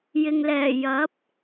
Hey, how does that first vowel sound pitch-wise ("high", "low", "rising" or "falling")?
low